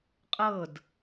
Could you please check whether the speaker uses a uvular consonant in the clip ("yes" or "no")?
yes